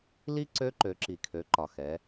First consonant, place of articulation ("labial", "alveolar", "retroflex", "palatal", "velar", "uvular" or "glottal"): alveolar